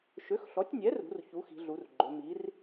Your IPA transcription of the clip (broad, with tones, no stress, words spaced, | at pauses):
ʃø˩˥xɬɔ˩˥tʲnʲɛ˩˥rṳ˩˧r çu˩˥xi̤˩˧ ɮu˩˧rɡ͡ǃø˩˧ mi˩˥r